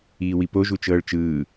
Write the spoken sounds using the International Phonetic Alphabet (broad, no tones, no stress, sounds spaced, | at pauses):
iː w i p o ʒ u t͡ʃ ɤː ɭ t͡ʃ ɯː